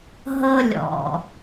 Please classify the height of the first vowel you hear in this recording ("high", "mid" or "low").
mid